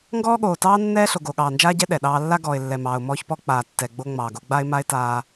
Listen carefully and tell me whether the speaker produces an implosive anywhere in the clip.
yes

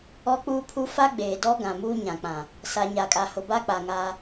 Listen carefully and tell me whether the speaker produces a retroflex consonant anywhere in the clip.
no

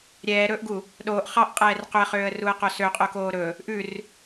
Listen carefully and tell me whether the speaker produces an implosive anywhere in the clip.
yes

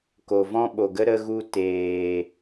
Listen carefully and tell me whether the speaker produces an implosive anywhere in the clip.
yes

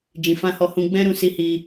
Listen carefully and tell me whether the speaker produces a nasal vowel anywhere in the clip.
yes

